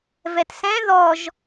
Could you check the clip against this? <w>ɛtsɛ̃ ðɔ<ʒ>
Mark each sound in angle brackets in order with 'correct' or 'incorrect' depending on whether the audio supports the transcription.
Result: incorrect: v, correct

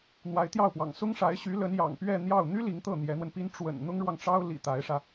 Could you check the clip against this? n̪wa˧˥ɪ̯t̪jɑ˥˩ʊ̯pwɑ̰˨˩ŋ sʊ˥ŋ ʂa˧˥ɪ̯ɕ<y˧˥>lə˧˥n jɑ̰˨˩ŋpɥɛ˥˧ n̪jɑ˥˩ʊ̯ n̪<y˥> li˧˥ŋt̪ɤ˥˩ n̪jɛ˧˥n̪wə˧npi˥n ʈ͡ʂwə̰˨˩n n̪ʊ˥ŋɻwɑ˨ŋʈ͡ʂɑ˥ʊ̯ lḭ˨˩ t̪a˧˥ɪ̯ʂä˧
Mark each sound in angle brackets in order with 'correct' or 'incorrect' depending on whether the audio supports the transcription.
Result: correct, correct

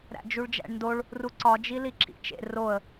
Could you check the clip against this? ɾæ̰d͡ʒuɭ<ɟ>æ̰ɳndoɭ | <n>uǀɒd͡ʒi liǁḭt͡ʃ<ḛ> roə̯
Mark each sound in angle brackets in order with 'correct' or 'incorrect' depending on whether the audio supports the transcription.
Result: incorrect: d͡ʒ, incorrect: r, correct

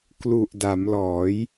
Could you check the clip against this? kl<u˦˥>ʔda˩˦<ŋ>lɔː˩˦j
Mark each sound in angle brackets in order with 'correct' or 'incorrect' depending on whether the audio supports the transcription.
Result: incorrect: u˨˩, incorrect: m

